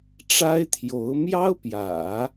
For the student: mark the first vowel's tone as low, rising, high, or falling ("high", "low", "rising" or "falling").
high